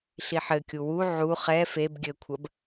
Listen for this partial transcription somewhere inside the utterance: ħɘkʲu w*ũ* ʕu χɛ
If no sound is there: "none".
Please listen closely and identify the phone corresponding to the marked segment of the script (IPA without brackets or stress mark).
u